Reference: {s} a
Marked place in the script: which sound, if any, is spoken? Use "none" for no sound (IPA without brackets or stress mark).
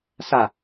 s